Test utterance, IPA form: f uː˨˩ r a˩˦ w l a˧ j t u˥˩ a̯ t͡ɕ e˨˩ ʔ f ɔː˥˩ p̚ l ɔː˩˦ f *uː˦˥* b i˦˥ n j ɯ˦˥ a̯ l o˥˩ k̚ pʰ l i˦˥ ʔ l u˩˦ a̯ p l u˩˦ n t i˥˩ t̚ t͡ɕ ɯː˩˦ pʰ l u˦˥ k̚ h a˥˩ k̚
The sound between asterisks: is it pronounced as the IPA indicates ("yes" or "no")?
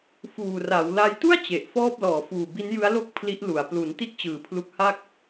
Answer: no